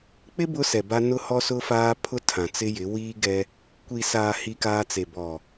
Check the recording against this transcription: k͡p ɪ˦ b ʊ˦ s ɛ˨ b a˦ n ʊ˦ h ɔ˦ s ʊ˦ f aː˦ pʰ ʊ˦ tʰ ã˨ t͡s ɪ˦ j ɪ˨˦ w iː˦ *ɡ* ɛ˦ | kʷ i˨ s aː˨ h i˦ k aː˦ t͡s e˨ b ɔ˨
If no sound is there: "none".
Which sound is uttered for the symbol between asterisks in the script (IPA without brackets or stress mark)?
ɡ